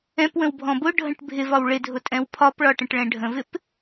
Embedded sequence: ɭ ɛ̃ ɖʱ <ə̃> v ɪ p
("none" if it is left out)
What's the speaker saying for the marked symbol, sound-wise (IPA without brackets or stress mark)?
ə̃